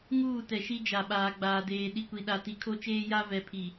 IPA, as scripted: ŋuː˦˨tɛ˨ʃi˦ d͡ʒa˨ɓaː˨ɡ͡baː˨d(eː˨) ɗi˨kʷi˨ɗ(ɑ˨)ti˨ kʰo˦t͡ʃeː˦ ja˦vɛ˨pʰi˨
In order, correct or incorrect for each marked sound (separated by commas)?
correct, incorrect